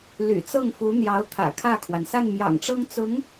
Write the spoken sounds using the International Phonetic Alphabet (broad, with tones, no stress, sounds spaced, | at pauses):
l y̰˨˩ t͡s ɤ˥˩ ŋ f u˧˥ n̪ j ɑ˧˥ ʊ̯ t̪ʰ ä̰˨˩ kʰ ä˥˩ kʰ w a˩ n s a˥˩ n m j ɑ̰˨˩ ŋ ʈ͡ʂ ɤ˥ ŋ t͡s ʊ˧˥ ŋ